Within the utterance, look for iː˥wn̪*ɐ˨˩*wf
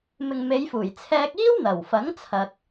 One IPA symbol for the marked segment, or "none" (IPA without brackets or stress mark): ɐ˨˩